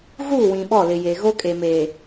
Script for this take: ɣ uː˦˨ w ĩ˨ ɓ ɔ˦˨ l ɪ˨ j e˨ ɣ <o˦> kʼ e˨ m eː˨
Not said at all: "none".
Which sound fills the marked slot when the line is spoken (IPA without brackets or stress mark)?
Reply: o˦